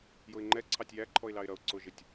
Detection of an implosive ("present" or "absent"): absent